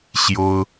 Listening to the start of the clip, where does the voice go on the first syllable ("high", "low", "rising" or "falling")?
high